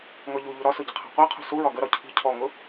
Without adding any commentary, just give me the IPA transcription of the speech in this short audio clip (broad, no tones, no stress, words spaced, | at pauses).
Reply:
ŋɔʎuʎu ɾɒsʊ ɟɪqʰæ̤qʷæqʰṳ suɹɒ ɡəɾɒ cʰi̤ cʰɔŋʊ